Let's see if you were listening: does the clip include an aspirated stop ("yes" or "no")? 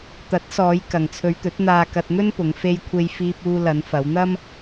yes